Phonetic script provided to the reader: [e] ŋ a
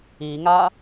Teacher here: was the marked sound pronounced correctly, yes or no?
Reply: no